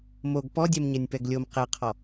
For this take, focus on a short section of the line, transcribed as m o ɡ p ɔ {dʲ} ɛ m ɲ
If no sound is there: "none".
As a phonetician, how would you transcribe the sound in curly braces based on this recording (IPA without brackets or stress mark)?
dʲ